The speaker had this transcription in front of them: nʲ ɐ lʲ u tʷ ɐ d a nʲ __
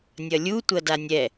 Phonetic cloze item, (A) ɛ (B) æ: A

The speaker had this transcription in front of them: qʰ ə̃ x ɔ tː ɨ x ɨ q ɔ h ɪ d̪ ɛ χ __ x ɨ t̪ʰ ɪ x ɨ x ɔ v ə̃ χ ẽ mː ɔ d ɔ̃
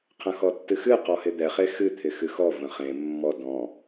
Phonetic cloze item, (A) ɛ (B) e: B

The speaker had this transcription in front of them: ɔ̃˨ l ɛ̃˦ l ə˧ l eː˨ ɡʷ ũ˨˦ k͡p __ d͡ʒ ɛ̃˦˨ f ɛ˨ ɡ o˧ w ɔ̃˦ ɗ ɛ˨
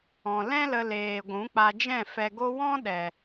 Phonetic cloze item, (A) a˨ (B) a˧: B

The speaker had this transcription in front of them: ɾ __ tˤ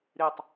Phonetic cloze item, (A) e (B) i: B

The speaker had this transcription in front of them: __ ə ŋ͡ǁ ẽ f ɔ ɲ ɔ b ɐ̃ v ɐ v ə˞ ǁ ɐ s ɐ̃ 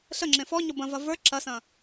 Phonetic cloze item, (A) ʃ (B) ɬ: B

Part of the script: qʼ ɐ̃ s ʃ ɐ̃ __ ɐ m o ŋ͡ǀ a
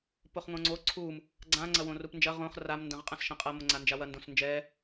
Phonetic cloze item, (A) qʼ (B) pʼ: A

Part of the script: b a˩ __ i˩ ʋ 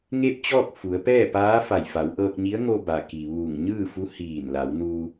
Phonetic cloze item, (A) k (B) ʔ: A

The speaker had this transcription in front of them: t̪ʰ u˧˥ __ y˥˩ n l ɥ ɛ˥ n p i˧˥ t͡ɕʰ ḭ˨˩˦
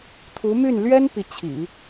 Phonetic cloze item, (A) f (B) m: B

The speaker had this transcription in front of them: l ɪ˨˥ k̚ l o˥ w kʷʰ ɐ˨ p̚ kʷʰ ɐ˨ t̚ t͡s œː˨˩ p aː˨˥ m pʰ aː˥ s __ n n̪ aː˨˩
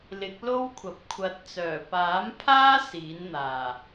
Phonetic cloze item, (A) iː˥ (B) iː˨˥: B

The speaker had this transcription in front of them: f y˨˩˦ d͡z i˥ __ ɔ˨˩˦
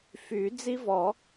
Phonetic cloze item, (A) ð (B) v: B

